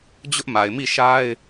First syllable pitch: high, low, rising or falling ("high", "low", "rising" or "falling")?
high